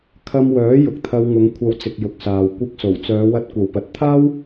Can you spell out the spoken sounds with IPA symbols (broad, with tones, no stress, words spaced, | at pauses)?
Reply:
kʰɐ˧mwœː˨˥ jʊ˨k̚t̪ʰɐ˧wŋʊ˨˧ŋ kʷʰɐ˧wt͡sɪ˨k̚ jʊ˧k̚saː˨w kʷɪ˧k̚so˨˩w t͡sœː˨˧wɐ˧t̚kʷɐ˨w pɐ˨t̚t̪ʰaː˥w